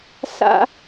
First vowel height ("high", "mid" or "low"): low